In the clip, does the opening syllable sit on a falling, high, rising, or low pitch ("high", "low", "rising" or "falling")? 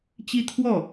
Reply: high